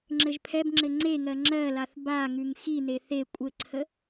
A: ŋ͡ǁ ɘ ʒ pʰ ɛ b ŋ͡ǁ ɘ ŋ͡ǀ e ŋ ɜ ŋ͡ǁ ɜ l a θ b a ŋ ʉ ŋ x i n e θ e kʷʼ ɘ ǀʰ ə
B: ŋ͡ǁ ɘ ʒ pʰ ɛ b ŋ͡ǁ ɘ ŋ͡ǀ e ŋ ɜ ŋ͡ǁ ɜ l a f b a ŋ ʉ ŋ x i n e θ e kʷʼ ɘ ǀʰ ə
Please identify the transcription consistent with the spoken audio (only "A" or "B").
A